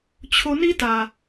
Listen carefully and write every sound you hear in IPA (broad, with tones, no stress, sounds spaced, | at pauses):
t͡ɕʰ o˧ n i˦ t a˨